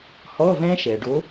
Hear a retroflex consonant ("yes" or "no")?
yes